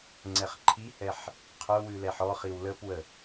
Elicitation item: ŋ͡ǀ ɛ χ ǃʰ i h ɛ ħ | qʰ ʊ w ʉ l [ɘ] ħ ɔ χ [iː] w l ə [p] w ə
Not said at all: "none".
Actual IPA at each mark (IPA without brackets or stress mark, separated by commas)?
ɛ, i, p